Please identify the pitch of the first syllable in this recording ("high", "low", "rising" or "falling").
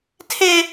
high